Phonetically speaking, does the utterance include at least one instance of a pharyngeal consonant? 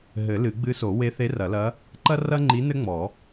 no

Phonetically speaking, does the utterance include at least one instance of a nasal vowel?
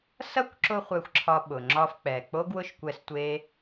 no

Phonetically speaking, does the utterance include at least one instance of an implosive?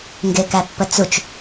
no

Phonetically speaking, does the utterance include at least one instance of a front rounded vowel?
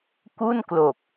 no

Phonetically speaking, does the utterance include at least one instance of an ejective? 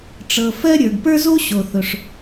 no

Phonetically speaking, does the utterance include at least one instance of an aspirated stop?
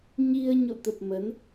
no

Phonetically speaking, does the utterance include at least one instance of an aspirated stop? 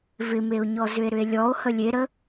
no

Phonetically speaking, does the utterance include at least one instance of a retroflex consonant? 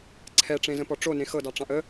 yes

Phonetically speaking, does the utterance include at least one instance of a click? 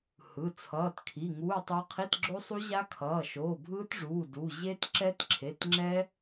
yes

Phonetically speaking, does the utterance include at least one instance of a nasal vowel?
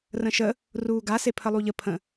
yes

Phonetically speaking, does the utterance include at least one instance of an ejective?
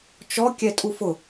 yes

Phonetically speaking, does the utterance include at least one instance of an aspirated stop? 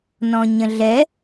no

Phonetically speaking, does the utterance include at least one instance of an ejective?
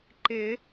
no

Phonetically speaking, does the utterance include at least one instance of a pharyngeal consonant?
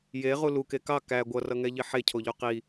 yes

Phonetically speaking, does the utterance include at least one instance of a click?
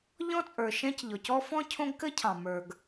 no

